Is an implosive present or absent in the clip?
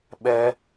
present